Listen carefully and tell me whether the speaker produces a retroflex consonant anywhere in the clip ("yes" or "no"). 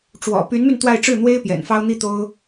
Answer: yes